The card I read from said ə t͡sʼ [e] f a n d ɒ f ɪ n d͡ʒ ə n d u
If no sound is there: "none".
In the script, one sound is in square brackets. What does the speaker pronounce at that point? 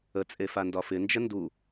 e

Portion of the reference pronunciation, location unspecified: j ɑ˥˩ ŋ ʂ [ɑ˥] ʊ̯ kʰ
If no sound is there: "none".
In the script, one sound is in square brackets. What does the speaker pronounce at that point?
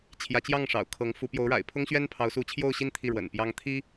ɑ̰˨˩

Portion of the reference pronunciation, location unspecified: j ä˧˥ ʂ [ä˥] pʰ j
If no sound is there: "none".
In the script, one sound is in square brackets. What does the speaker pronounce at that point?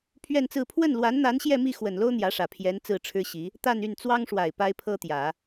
ä˨˩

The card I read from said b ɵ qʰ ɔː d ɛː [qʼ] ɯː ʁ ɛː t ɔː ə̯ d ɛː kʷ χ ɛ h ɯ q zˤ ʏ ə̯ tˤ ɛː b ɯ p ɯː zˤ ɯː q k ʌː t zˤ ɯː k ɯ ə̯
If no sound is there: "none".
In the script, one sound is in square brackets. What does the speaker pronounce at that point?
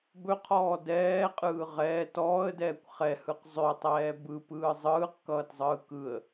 qʼ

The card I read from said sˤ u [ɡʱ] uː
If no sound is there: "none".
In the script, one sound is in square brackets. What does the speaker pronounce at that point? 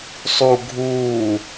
ɡʱ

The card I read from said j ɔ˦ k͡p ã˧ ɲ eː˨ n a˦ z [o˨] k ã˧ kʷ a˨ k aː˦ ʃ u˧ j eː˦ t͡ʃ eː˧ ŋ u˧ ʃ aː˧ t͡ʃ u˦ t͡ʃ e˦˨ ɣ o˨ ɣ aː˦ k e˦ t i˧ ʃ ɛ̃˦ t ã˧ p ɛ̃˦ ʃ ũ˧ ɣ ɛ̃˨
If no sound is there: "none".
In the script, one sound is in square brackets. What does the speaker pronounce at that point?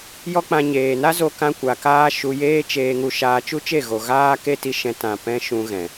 o˧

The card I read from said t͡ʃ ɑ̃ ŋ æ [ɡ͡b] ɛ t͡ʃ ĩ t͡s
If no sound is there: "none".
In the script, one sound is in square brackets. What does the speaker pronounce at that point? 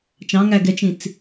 ɡ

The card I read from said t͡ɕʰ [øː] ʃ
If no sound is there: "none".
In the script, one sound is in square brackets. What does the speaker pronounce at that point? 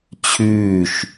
ʉː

